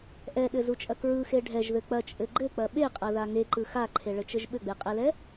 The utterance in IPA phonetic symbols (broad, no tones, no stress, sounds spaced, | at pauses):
ʔ ɛ ɗ ɘ z u t͡ʃʼ ɐ k ɹ ɯ x e ɖʱ ɛ ʒ ð ɘ k͡p ɐ t͡ʃʼ ɘ ɡ͡ǃ ɘ k͡p ɐ ɓ e qʼ ɐ ð a ŋ e ǃ ɯ x a ǃʰ e ɭ ɘ t͡ʃ ɘ ʒ ɓ ɘ ɡ͡b e qʼ ɛ l ɛ